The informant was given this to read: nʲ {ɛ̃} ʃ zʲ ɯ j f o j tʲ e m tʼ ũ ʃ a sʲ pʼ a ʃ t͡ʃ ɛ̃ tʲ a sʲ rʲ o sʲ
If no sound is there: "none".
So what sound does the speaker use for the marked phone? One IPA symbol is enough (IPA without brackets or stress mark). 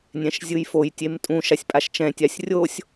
ɛ̃